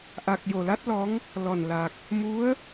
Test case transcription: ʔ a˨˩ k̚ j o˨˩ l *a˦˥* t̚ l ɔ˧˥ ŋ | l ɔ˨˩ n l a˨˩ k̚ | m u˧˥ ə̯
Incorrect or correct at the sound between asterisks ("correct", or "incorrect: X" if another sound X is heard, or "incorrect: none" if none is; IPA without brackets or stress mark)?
correct